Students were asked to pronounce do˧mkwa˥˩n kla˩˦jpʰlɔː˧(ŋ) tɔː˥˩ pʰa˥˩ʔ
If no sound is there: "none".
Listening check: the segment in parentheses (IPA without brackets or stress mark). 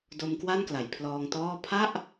ŋ